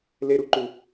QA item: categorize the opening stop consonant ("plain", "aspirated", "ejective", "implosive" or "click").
click